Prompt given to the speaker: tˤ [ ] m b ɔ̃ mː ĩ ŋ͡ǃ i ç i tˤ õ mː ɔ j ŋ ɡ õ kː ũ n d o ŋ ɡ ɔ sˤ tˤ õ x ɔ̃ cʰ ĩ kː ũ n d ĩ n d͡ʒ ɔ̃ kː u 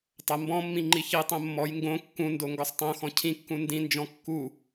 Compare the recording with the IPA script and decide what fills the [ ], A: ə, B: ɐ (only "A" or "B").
B